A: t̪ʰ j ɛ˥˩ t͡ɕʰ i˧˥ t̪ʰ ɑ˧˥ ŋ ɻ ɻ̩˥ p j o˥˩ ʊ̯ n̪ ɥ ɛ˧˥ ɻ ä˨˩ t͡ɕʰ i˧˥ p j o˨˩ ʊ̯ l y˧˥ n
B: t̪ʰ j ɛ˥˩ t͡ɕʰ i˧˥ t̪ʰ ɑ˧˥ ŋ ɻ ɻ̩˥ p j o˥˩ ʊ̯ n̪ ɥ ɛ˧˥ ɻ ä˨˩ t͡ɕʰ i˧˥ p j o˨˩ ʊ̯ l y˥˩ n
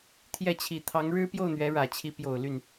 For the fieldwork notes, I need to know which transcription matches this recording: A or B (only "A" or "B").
B